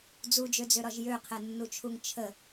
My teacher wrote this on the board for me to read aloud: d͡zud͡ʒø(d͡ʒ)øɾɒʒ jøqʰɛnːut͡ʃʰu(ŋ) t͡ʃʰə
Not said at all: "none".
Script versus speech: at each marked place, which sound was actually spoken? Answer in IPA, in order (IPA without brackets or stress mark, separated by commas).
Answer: d͡z, ŋ